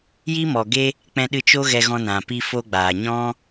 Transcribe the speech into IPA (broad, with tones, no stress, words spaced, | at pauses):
ji˦mɔ˨ɡe˦ | k͡pɛ̃˧ɗɨ˧ t͡ʃo˦ɣɛ˧ɣɔ̃˧nã˨ pi˧fo˧ɡ͡baː˨ ɲɔ̃˦